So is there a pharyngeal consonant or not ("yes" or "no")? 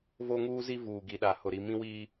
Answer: no